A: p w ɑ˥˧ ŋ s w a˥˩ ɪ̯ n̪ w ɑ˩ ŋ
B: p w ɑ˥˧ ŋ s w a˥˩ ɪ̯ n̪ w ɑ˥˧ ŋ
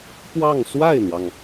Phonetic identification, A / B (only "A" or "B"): A